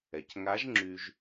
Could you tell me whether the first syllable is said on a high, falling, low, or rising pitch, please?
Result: low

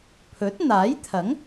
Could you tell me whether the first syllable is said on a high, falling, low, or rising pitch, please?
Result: rising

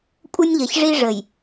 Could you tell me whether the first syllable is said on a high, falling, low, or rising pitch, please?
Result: high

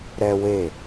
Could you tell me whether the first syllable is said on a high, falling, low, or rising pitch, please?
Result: high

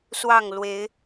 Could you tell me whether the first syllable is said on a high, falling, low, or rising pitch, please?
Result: falling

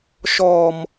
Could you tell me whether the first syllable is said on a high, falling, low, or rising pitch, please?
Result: low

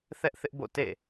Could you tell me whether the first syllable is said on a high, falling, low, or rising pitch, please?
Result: high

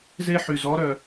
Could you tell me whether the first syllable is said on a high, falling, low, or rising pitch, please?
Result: high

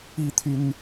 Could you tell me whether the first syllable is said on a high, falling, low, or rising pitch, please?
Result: falling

